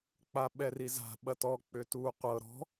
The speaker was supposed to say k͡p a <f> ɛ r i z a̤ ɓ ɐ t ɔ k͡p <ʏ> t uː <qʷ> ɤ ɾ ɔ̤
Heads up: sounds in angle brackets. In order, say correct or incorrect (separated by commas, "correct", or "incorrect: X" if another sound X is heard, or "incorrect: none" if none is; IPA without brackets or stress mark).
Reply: incorrect: ɓ, correct, correct